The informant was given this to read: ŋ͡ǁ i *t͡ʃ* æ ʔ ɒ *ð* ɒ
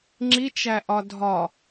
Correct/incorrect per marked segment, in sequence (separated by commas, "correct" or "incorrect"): correct, incorrect